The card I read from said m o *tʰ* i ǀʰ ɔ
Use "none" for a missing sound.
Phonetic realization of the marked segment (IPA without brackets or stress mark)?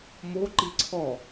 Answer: ǃ